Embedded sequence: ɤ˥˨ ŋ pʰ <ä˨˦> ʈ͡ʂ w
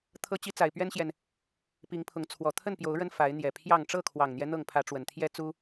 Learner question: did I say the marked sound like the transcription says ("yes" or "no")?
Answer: yes